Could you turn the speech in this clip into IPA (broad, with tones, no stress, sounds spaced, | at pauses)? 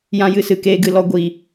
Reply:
j ã˦ j ɨ˧ s ɨ˨ k eː˦ ɡ ɨ˧ l ɔ˧ ɡʷ i˨